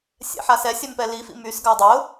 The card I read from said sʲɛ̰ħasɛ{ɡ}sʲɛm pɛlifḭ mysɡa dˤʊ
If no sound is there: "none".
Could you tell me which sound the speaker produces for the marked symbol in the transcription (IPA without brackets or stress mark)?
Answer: none